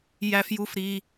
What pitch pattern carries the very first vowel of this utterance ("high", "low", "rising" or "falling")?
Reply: high